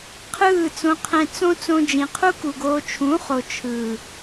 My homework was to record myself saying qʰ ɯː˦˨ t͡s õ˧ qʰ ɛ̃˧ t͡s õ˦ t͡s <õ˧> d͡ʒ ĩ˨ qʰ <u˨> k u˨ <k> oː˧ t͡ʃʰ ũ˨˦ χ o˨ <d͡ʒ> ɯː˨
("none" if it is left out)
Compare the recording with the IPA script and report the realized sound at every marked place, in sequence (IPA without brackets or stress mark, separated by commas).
õ˧, u˦, ɡ, t͡ʃʰ